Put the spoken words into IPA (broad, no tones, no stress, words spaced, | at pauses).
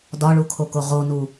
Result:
dɒɭukʰoko ʁonu